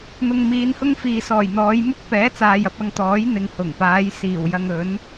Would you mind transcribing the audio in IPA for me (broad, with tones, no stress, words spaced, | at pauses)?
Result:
n̪ʊ˨ŋ miː˨˧nhʊ˥ŋfiː˨sɔː˨˩j n̪ɔː˨˧jmʊ˥k̚pɛː˨˥ t͡saː˨jɐ˧p̚ɐ˧ŋt̪ɔː˨˥j n̪ɪ˨ŋhʊ˨˩ŋpaː˨˧j siː˨˩wjɐ˧ŋɵ˨˥n